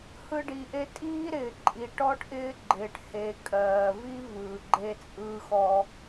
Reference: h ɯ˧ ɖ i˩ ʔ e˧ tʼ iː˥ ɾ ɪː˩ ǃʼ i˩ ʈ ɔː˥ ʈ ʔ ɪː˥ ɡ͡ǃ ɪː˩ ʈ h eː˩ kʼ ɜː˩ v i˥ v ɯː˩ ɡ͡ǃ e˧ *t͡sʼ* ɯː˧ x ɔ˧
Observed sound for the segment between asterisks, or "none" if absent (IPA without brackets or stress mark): t͡sʼ